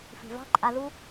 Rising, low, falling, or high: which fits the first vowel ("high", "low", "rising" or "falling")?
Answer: low